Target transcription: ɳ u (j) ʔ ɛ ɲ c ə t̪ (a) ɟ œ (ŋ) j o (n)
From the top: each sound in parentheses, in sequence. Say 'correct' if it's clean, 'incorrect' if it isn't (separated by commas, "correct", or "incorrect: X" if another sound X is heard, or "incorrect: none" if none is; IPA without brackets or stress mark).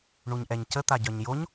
incorrect: ɲ, correct, incorrect: ɲ, incorrect: ɲ